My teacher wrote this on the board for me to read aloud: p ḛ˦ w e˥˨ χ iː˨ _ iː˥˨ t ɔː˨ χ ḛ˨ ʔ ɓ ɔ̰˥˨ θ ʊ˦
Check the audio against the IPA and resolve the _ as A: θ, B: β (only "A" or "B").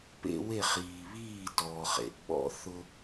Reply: B